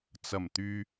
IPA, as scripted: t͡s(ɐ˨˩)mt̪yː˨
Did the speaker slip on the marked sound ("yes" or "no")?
no